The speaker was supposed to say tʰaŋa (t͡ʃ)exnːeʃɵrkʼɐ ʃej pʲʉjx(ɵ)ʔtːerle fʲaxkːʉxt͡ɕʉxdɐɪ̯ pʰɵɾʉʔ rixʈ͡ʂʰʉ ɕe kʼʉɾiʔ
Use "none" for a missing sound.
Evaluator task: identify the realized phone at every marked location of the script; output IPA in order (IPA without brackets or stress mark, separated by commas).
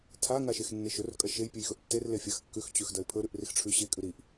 ʃ, ɵ